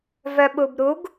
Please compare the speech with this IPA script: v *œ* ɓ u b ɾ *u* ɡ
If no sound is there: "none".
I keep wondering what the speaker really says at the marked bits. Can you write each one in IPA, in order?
œ, u

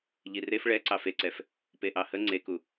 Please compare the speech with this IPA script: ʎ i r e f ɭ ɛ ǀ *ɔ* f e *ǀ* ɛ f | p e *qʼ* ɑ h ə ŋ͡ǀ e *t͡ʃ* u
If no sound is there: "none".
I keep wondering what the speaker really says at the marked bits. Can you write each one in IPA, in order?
ɑ, ǀ, ʔ, k

